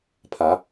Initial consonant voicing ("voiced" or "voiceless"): voiceless